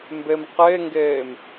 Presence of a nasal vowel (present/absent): absent